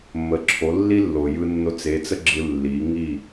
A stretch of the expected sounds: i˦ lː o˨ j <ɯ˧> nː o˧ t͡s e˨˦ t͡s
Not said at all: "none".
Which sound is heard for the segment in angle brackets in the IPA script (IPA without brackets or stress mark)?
ɯ˧